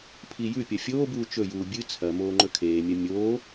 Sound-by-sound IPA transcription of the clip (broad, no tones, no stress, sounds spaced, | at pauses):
pʰ i j ʉ pʲ ɐ fʲ oː b uː t͡ʃ ɵ j uː bʲ ɨ t͡sʰ ɐ m oː ŋ͡ǃ ɵ kʰ eː mʲ ɐ mʲ oː